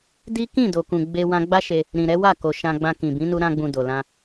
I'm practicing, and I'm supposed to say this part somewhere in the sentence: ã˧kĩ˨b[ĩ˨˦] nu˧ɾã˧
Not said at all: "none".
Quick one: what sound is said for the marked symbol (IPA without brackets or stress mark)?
ĩ˨˦